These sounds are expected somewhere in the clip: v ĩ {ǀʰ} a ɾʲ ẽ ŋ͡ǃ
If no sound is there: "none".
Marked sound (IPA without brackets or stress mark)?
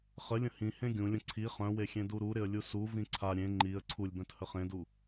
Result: ǀʰ